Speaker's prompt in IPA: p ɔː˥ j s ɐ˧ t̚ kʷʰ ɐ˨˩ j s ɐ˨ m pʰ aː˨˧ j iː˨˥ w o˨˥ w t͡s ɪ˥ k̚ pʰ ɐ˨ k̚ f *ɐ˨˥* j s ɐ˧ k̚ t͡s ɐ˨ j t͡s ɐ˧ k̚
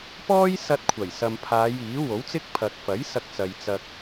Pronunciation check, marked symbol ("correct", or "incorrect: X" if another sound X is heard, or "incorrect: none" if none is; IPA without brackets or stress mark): correct